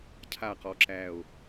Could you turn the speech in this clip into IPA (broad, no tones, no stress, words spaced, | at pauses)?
cʰa qɔǁæo̯